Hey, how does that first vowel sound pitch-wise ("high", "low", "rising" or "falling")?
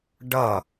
falling